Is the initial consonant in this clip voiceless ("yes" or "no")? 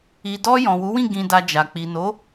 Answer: no